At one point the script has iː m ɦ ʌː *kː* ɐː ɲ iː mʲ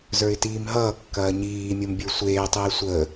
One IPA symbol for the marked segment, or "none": kː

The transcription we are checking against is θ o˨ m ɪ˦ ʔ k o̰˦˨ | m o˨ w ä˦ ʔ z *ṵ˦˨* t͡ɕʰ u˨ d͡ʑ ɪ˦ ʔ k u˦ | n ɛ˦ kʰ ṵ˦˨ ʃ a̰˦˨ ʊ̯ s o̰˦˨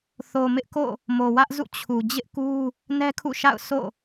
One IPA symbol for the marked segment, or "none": ṵ˦˨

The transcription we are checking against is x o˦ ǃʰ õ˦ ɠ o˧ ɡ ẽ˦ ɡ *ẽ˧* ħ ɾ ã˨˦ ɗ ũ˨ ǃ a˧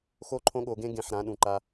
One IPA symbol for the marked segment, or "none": ẽ˧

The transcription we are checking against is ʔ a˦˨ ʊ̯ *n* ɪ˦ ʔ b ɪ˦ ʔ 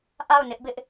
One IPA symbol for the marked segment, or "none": n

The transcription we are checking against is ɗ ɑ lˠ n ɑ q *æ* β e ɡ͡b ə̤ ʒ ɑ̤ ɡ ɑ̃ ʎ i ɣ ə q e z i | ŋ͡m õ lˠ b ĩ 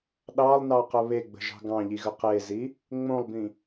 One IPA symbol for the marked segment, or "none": ə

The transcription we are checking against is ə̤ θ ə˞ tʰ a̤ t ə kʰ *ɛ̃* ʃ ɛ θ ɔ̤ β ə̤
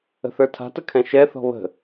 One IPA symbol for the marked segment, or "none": ɛ̃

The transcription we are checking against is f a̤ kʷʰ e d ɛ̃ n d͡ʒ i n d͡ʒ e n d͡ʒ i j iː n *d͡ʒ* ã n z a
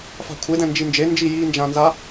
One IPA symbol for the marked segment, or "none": d͡ʒ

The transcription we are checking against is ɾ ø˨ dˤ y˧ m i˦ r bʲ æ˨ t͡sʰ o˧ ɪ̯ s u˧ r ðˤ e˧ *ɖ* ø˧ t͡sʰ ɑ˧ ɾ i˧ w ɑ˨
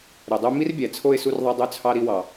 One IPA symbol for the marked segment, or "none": dˤ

